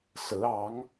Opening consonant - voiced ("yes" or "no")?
no